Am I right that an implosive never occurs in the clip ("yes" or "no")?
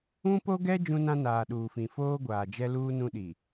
no